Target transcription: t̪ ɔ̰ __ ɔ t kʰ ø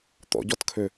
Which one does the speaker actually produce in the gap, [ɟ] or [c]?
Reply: ɟ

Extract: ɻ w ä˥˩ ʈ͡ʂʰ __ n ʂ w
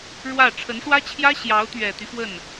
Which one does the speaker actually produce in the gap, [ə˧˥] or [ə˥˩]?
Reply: ə˧˥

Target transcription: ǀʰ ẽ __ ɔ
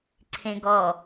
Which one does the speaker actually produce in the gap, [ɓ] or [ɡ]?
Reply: ɡ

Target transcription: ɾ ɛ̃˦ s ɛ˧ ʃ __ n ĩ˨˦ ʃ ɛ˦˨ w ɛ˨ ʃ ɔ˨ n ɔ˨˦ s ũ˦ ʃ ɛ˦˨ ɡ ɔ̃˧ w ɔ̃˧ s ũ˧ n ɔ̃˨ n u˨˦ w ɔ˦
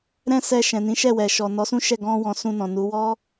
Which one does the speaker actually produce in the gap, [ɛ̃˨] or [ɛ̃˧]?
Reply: ɛ̃˨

